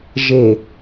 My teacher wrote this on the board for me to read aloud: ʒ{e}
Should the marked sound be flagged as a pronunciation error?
no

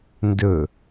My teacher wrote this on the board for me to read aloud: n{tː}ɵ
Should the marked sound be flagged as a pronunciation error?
yes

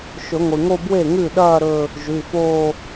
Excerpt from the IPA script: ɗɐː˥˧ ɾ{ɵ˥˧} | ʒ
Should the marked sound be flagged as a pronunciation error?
no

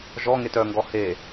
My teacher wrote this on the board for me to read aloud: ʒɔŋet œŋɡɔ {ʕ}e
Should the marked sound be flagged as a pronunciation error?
yes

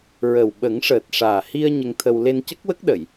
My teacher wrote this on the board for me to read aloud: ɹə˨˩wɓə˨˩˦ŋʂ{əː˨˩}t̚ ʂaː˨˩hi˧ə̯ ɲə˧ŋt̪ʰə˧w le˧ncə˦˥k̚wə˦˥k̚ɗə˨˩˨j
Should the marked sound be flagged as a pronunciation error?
no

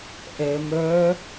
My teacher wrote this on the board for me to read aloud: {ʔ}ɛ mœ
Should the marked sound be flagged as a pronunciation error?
no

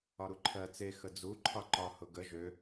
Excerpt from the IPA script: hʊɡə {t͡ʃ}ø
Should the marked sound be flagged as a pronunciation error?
yes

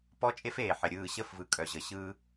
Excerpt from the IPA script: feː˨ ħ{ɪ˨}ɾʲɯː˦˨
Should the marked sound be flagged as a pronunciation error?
no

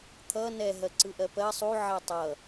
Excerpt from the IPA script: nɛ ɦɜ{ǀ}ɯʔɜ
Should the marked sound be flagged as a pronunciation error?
no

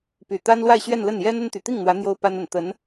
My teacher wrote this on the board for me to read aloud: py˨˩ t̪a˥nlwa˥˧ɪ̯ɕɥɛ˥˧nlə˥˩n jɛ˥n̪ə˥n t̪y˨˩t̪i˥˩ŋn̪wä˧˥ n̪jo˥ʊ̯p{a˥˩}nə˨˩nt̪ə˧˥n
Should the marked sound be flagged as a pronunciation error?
yes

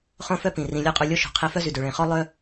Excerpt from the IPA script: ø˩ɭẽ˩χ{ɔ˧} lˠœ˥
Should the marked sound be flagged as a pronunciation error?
yes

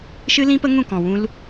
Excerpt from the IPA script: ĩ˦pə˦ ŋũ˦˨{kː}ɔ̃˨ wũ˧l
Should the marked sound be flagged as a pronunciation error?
yes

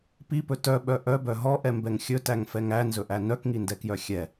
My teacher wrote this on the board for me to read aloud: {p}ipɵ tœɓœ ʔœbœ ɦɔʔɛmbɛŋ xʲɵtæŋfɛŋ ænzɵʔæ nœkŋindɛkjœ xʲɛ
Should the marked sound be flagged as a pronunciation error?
no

